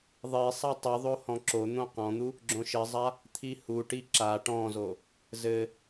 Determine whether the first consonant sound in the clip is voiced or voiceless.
voiced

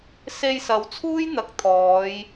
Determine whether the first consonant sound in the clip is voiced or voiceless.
voiceless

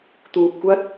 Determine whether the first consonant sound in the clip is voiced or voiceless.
voiceless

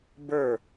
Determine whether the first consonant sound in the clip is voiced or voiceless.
voiced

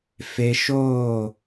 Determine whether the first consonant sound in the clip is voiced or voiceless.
voiceless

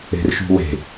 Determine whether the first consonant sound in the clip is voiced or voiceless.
voiced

